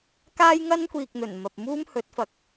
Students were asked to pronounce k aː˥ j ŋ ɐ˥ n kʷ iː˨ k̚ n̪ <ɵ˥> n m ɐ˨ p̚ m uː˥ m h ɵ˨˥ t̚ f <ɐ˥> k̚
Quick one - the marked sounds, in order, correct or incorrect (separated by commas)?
incorrect, incorrect